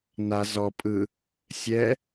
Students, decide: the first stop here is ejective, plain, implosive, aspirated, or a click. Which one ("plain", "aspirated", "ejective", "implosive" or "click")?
ejective